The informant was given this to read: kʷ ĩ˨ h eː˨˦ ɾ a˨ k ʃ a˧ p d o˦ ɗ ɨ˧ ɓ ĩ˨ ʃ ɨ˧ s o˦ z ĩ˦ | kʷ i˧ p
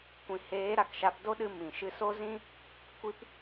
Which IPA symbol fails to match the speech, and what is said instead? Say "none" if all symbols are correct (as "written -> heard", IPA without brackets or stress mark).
ɓ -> m